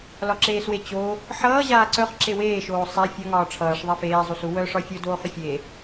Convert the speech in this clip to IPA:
l ɒ ǁ eː s w e t͡ɕ o | ħ ʌː ʑ aː ǀ œ χ ǁ e w eː ʃ oː sˤ ɛ fʲ ʌ ŋ ɒː ʈ͡ʂʰ ʌː ʂ ðˤ e f eː zˤ u s u w œ ʂ ɒ fʲ o d oː χ ʏ fʲ e

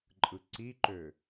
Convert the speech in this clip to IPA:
ǃʼ ɯ ǀ i ǃ ø

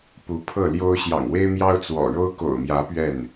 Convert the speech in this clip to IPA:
p u˨˦ pʰ ɤ˥˨ l j o˦ ʊ̯ ɕ j ɑ̰˨˩ ŋ w e˦ ɪ̯ m j ɑ˦ ʊ̯ t͡s w ɔ̰˨˩ ɻ o˦ ʊ̯ k o̰˨˩ ʊ̯ m j ä˨˦ p ɥ ɛ˥˨ n

